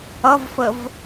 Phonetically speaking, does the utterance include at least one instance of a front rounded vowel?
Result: no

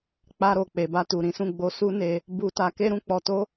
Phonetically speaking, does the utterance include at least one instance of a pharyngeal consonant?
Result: no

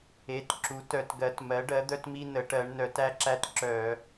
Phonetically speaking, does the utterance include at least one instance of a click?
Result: yes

